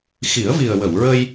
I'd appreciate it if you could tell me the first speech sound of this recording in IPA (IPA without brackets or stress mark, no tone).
x